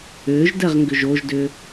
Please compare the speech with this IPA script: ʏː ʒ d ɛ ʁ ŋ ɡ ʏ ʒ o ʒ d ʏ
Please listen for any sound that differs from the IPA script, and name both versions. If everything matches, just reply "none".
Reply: none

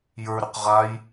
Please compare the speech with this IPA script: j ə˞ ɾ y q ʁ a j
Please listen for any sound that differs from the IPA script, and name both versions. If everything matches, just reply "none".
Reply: none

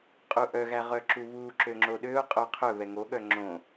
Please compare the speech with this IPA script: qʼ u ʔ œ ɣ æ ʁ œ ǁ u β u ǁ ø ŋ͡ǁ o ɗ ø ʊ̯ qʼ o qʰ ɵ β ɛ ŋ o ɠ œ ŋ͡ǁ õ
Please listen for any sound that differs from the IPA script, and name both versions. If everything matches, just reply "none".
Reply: none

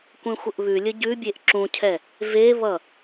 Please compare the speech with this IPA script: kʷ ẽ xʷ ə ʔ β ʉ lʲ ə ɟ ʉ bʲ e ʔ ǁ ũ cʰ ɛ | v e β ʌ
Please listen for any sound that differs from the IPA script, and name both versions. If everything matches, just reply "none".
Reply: none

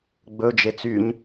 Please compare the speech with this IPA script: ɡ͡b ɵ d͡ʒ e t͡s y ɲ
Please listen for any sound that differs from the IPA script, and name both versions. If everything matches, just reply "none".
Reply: none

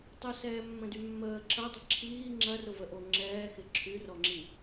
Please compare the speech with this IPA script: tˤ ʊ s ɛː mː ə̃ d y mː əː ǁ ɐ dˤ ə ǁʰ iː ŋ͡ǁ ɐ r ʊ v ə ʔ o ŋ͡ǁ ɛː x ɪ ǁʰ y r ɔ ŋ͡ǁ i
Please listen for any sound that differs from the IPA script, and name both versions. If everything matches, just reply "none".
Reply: none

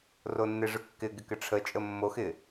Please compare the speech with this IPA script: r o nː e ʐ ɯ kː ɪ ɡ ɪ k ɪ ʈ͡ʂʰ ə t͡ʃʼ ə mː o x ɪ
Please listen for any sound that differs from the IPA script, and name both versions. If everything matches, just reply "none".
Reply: none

